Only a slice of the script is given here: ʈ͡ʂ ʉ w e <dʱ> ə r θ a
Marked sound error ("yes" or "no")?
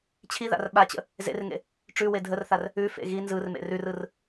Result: no